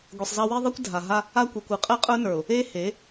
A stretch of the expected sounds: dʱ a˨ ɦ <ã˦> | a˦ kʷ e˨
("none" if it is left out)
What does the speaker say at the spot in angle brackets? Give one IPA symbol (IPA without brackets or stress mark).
a˦